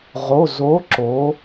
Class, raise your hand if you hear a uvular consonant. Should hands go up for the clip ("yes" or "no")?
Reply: yes